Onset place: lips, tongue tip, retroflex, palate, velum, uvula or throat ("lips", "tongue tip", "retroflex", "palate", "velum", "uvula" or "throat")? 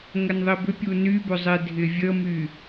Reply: velum